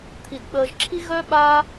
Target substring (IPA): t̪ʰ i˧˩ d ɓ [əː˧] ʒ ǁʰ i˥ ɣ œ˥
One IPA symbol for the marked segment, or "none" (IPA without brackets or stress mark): əː˧